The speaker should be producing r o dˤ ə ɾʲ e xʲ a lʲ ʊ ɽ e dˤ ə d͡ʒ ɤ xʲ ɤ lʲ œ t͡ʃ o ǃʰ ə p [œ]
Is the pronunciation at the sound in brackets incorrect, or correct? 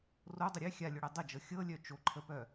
correct